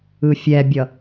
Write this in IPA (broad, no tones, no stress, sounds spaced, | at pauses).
ɯ fʲ ɛ bʲ ʌ